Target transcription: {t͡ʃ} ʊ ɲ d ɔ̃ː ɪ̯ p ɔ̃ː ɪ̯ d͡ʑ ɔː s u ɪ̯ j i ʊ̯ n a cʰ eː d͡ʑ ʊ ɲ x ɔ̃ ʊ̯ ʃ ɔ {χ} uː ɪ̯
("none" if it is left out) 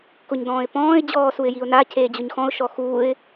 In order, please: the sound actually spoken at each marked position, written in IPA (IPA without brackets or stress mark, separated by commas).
k, x